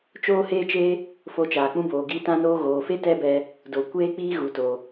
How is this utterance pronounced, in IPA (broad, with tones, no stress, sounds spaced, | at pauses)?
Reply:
t͡ʃ oː˦ h eː˦ t͡ʃ e˦ | f o˧ t͡ʃ aː˨ k͡p ũ˦ b oː˨ ɡ iː˧ t ã˦ n oː˦ ɣ oː˨ f e˦ t ɛ˦ b ɛ˧ | d o˨ kʷ eː˦ k͡p iː˦ ɣ u˨ t o˨